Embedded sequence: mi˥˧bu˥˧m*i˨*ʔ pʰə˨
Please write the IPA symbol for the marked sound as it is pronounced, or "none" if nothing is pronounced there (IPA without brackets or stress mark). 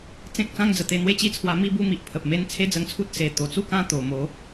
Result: i˨